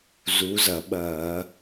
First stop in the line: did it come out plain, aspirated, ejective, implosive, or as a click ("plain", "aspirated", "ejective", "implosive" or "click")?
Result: implosive